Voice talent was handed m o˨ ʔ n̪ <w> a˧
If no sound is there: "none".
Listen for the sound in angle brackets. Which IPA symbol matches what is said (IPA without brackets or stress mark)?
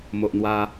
w